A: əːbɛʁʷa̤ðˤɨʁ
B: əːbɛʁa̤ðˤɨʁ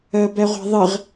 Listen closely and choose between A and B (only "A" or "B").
A